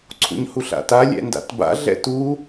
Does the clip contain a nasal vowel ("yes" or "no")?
no